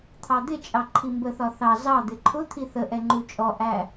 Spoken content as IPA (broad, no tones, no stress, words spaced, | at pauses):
t̪ʰɑd̪ɪt͡ʃʼɑ ǃʰimbəθɒ θɑ zɑd̪ɪ ǃʰʊ t̪ʰiθəʔɛ ŋ͡ǃut͡ʃʼɔʔæ